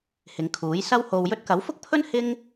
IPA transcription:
hɪ˨˧ŋkʰuː˨˥j sɐ˥who˧wjɵ˥t̚ kɐ˨˥wfʊ˥k̚pʰɵ˥n hɪ˥ŋ

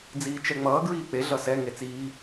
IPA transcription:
d͡ziːt͡ʃɛŋ͡mʌː ɡɹiːk͡pe ɮʌsɛ ŋet͡siː

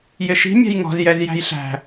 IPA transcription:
jɪʃi̤ mʲæ̤jŋɔ̤z jɛzjæ̤jɬæ̤

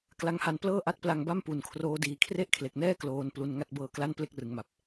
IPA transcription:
kla˦˥ŋha˧n plɤː˥˩ʔa˦˥t̚pla˧ŋba˥˩m pu˨˩nkʰroː˦˥diː˩˦ kʰre˥˩ʔkʰle˨˩k̚nɛː˥˩ kloː˧n plu˧nŋa˥˩t̚ bɤː˧kla˥˩n ple˥˩k̚rɯ˩˦ŋma˨˩p̚

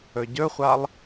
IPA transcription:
ɵɟɵχʷalˠ

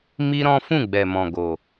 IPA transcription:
mi˦ɾɔ̃˦ fũ˦˨ɡ͡bɛ˨mɔ̃˨ ɡo˨

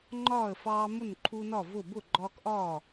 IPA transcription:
ŋ͡ǃɒː˥˨ə̯fɑː˦ mʊ˥˨nǃʰu˦nɒ˥˨vʊː˥˨ bʊ˥˨ɡ͡ǃɒː˦kʔɒː˥˨

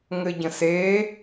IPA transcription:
ŋɘɟə̃se

